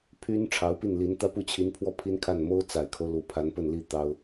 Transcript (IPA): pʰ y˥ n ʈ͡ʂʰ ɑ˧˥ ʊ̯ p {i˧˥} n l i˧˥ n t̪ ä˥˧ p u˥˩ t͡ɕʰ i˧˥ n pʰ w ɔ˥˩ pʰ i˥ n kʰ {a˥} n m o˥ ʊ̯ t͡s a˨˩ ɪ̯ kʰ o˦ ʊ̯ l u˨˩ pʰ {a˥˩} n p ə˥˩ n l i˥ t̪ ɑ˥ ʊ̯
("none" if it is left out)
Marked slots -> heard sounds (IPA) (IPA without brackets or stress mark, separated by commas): i˥˩, a˥˩, a˧˥